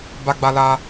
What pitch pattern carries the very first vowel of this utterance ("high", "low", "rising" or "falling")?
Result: high